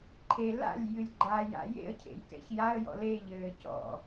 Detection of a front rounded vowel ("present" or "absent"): absent